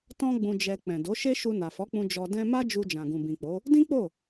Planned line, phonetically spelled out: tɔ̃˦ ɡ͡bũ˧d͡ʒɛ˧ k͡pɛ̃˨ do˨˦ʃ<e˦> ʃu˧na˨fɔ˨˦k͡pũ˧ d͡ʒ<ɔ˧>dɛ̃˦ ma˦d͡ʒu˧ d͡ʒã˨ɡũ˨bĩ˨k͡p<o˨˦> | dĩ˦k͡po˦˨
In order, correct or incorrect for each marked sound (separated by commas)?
correct, correct, correct